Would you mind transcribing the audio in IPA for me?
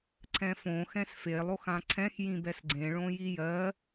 ǀʰ ɛ̃ f õ x ɛ̃ s f e lˠ o x ã ǀʰ ɛ̃ x j ĩ b ɛ s ɡ͡ǀ ẽ ɭ õ j i j ɜ

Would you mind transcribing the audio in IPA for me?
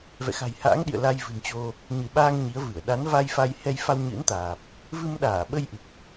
v ɛ̰˧˨ x a̤˨˩ j h a̰ː˧˥ ŋ ɗ ḭ˧˨ ə̯ l a˧ j v ɨ̤˨˩ n t͡ɕ o˧ | ɲ ɨ˧˩ ɓ aː˧ ŋ ɲ i˨˦ ə̯ v ɨ˧˩ ə̯ ɗ a˨˦ n v a˧ j f a˧ j h ɛ˧ j f a˧ w ɲ ɨ̰˧˥ n t̪ aː˨˩ p̚ | v ɨ˧ m ɗ aː˧˩ ɓ ə˧ j ʔ ɨ˨˩ k̚

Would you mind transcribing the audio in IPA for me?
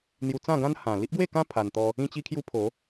n̪ j u˧ t͡s ã˥˧ ɡ ã˦ n h ã˨˩ l i˦ ʔ ɡ w e˥˧ k ã˦ pʰ a˧ n t̪ ɔ˦ | ĩ˦ t͡ɕ i˦ kʰ j u˦ pʰ o˨˦

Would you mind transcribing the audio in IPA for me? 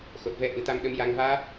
x o˨˩ t̚ v ɛ˧ ʔ ɨ˨˩ t̪ a˧ m ɗ ə˧˥ m j a˧ ŋ v aː˦˥ p̚

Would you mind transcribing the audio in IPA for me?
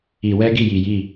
i˧˩˧ w ɛ˦˥ ɡ i˥˩ j i˧˩ j i˥˩

